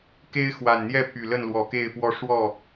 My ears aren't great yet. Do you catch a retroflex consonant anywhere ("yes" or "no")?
yes